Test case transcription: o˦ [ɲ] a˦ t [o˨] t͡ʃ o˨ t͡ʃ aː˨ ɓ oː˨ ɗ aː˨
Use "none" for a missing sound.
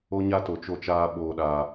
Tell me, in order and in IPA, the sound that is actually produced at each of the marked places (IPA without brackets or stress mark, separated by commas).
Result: ɲ, o˨